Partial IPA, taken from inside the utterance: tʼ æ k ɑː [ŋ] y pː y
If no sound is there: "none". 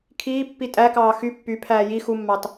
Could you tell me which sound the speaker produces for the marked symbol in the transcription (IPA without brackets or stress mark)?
x